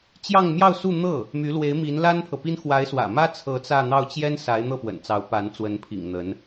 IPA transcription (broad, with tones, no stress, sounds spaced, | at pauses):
t͡ɕ j ɑ˥˧ ŋ m j ɑ˥˧ ʊ̯ s u˥˧ n̪ ɤ˥˩ | m y˧˥ l w e˧˥ ɪ̯ m i˧˥ n l a˥ n pʰ ɤ˨ p i˥ n x w a˧˥ ɪ̯ s w ä̰˨˩ m ä˥ t͡sʰ ɤ˧˥ t͡s ä˥˧ n̪ ɑ˥˩ ʊ̯ t͡ɕ j ɛ˥ n s a˧˥ ɪ̯ n̪ ɤ˥˩ p w ə̰˨˩ n t͡s ɑ˧˥ ʊ̯ p a˧˥ n t͡s w ə˧˥ n pʰ ḭ˨˩ ŋ n̪ ə˧˥ n